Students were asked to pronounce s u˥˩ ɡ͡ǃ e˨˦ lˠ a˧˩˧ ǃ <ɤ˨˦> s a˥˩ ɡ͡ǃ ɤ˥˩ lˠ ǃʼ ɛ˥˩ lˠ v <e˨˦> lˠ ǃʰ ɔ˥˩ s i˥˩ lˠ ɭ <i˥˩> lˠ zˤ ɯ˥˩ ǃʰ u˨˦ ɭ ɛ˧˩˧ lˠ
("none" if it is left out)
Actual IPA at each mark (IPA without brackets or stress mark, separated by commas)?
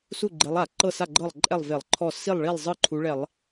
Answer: ɤ˥˩, e˧˩˧, i˥˩